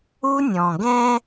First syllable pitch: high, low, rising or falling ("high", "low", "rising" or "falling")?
high